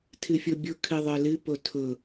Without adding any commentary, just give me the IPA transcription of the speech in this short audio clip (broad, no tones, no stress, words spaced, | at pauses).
tʰɨfʲobʲʊ kʰɨðˤə˞lɨ potʰʊ